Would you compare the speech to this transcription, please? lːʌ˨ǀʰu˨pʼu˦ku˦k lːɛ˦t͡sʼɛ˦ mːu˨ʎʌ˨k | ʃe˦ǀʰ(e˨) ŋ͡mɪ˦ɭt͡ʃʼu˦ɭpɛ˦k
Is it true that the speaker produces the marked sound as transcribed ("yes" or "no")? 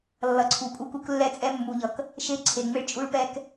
yes